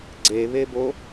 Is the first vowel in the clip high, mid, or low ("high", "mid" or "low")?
mid